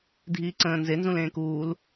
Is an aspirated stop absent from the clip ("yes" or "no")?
yes